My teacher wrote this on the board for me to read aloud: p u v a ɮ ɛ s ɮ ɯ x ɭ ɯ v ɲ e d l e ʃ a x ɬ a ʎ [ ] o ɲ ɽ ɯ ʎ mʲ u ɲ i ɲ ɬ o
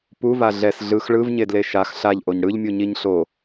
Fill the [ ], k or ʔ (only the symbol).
ʔ